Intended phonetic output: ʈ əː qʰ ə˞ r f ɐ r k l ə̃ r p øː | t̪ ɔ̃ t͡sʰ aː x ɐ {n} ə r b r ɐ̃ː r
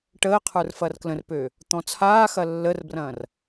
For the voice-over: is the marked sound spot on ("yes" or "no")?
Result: no